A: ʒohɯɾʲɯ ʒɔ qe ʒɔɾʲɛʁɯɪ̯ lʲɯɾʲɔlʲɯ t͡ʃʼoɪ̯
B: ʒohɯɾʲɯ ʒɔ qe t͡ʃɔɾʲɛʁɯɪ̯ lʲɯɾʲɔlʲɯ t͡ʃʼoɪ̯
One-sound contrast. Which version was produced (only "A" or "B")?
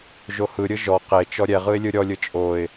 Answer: B